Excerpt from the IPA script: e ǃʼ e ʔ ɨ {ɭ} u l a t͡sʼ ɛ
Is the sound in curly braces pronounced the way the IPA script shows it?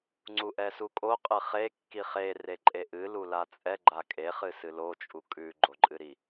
no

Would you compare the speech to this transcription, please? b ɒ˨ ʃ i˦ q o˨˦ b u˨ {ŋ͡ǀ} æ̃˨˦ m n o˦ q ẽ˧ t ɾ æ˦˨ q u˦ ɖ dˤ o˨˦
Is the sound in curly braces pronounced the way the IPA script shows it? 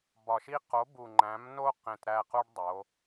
no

